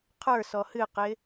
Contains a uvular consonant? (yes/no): yes